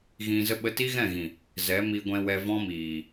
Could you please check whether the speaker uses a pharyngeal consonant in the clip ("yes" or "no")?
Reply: no